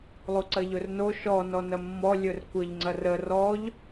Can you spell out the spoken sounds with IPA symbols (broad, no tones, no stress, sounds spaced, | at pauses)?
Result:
lˠ u ǀ ɐ ʎ ɵ r n o ʃ ɔ n ɔ n ɐ mː ɔ lʲ ɵ r kʷ ə ʎ ŋ͡ǀ ɐ r ə r ɔ ʎ